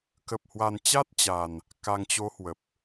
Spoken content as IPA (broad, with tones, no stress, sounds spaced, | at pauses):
k ə˨˩ p̚ h w a˨˩ n t͡ɕ a˦˥ t̚ t͡ɕ a˨˩ n | k a˨˩ ŋ t͡ɕ o˨˦ h w ə˨˩ p̚